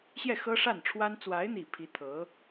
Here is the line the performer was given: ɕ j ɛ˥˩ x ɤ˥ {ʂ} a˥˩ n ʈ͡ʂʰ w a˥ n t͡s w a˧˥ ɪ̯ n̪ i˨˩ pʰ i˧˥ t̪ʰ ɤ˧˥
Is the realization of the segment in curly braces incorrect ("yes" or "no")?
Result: no